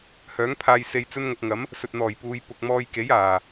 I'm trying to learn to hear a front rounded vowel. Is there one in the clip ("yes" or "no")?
yes